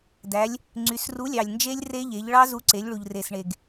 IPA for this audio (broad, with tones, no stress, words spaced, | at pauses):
dæ˩˧lʲ | ŋ͡ǀy˩˧sru˨˥lʲɑ˩lʲnd͡ʒe˦˥lʲ re˦˥ʎe˩˧ʎ ɭɑ˦˥zu˨˥ǀe˩˧lʲɭu˩ʎ re˩sɳe˩ɡ